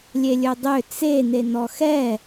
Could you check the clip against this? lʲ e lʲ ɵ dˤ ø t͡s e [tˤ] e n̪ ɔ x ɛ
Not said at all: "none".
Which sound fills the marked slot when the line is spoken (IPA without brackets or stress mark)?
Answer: n̪